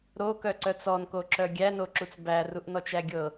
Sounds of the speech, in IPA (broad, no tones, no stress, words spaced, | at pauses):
ɾokœǀœt͡s ɔnkoǁœ ɡʲænoǁut͡s bæruʔnɔt͡ʃæ ɡʲɤ